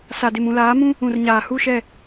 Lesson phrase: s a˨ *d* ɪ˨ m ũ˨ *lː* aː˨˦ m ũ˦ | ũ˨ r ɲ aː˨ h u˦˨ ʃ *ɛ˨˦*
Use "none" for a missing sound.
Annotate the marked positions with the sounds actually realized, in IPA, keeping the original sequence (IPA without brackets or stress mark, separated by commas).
d, l, ɛ˦˨